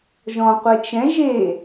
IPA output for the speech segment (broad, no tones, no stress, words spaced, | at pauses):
ʒɔ̃qʷɛt͡ʃɛ̃ ʒe